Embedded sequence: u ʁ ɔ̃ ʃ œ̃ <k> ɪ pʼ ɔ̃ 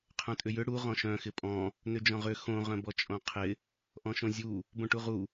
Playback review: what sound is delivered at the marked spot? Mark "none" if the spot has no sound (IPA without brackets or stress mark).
x